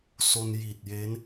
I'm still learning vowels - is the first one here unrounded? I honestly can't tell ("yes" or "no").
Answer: no